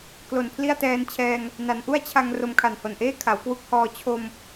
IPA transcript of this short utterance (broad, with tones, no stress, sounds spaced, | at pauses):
k l o˨˩ n pʰ l i˥˩ a̯ t ɛː˧ n t͡ɕʰ ɛː˧ ŋ | n a˩˦ n ʔ u˥˩ a̯ t͡ɕʰ a˧ ŋ r o˧ m kʰ a˨˩ n h o˨˩ n ʔ eː˥˩ kʰ a˩˦ w k w u˦˥ k̚ h ɔː˧ t͡ɕʰ o˧ m